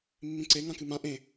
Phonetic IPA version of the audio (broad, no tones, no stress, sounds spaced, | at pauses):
mː ĩ ǀ e ŋ ã k ɨ m ã ʔ ẽ